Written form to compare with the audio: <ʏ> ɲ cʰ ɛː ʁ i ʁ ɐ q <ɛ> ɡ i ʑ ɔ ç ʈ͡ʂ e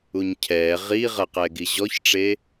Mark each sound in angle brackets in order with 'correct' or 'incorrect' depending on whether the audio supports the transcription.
incorrect: u, incorrect: ɛː

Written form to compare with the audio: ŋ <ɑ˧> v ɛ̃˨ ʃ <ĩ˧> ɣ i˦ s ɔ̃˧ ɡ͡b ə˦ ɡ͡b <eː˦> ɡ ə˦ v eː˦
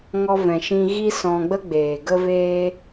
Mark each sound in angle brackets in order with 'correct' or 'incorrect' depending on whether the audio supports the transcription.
incorrect: ɔ˧, correct, incorrect: eː˨

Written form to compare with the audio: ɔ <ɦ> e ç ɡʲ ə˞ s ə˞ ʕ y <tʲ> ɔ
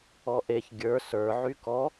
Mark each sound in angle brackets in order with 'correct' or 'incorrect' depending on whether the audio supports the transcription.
incorrect: ʔ, incorrect: k

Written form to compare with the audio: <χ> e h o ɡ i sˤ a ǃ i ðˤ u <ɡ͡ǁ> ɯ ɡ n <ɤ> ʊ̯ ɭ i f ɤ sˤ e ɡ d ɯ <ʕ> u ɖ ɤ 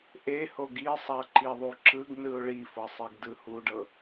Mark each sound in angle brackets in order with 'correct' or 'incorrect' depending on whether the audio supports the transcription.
incorrect: ʔ, incorrect: ǁ, incorrect: ɯ, incorrect: h

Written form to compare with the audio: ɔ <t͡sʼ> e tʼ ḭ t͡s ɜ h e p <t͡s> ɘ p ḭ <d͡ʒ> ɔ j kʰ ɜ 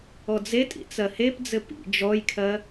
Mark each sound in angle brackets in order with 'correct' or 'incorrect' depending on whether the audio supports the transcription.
incorrect: d͡z, incorrect: d͡z, correct

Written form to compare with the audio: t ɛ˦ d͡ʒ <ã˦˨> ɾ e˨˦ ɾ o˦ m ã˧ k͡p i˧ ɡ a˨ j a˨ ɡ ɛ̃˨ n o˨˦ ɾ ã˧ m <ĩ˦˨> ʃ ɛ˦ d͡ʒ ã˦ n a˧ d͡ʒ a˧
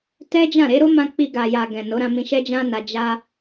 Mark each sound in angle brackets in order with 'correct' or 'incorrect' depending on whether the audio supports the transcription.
correct, incorrect: ĩ˧

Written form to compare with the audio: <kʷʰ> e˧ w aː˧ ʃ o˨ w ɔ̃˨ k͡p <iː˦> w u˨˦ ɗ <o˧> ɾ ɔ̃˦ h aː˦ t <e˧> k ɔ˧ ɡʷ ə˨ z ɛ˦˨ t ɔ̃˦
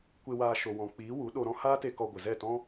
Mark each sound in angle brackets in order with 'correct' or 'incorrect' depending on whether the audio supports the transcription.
incorrect: kʷ, incorrect: iː˨˦, correct, correct

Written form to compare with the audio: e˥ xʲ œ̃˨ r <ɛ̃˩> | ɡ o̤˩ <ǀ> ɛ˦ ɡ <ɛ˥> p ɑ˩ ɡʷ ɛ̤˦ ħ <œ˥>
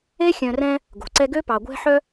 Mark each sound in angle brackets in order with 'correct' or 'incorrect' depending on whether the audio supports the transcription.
incorrect: ɛ̃˦, correct, incorrect: ø˥, incorrect: œ˦

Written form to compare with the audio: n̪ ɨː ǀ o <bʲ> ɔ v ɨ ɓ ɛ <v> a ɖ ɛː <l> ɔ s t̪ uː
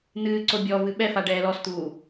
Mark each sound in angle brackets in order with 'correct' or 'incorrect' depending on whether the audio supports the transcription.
correct, incorrect: f, correct

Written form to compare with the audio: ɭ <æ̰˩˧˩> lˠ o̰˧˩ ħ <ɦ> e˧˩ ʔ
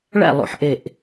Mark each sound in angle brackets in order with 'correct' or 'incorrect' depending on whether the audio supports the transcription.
incorrect: æ̰˥˩, incorrect: ʔ

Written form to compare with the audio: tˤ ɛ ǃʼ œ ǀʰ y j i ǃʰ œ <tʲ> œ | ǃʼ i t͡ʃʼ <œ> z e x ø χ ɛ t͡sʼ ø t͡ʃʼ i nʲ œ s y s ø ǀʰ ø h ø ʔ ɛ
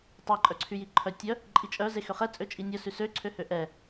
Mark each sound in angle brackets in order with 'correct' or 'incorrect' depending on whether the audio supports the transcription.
correct, correct

